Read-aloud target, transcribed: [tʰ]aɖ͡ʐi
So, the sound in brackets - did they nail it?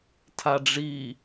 yes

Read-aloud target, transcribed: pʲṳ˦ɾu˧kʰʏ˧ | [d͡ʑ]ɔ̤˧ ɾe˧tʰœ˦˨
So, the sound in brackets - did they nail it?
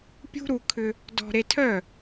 no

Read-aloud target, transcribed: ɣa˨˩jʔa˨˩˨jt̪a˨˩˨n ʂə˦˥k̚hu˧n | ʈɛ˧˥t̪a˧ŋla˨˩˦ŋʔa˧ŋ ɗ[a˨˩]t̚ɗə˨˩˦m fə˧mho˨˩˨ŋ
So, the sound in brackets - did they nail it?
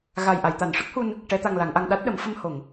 no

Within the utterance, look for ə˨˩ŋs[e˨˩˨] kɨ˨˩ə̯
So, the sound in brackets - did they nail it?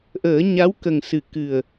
no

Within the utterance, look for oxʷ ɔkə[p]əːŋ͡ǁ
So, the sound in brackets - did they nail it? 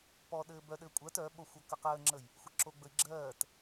no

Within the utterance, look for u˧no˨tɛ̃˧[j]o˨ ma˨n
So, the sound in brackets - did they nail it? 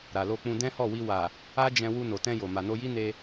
yes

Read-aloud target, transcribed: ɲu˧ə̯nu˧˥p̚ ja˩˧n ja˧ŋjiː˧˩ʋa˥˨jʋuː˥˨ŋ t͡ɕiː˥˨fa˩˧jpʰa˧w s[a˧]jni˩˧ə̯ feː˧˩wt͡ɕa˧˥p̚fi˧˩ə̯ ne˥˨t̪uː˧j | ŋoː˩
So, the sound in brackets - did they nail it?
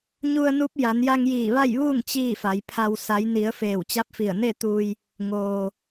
no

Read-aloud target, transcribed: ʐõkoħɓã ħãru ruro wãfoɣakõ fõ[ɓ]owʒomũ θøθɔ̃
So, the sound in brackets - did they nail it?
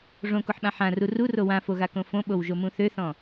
yes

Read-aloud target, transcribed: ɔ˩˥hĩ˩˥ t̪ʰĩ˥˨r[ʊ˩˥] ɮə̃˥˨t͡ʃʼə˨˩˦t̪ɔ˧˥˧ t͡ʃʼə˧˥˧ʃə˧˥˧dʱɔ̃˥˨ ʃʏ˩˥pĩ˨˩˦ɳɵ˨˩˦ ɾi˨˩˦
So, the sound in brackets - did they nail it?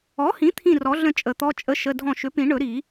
no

